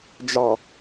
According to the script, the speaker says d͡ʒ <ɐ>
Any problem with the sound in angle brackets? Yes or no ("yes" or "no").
yes